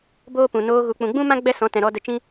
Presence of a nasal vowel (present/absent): present